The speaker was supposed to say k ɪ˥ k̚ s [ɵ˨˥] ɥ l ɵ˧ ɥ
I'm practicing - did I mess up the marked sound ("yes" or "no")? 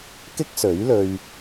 no